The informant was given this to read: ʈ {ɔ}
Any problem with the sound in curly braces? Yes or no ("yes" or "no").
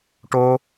yes